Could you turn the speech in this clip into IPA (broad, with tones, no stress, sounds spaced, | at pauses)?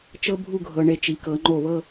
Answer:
t͡ʃ ɤ˥ bʱ u˥˧ ɡʱ ɤ˧ ɳ e˧ t͡ʃ i˩˧ k ɤ˩˧ ŋ͡ǃ o˧˩ β ɤ˥˧